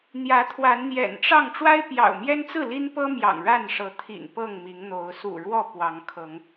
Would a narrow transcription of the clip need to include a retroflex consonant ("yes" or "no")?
yes